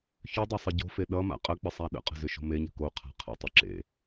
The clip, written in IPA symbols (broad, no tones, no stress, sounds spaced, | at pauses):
ç ʏ dˤ ʌ sˤ ɘ ɟ o̤ f e ɗ ʌ m a̰ qʼ ə k͡p ə sˤ a ɗ ə̰ qʼ ə̤ z ʏ ʃ o̤ m e ɲ ə̤ k o qʰ a̤ qʰ ə̰ tˤ ʏ ǁ ḛ